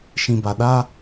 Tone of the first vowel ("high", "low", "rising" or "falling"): low